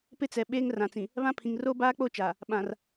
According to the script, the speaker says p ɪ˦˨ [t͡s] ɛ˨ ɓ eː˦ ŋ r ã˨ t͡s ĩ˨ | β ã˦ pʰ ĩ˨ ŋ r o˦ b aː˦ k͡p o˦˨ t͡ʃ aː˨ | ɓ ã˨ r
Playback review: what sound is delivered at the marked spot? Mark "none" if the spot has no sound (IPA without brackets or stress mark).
t͡s